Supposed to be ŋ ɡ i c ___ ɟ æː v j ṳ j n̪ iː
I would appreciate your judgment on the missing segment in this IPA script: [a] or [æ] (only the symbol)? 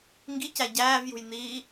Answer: æ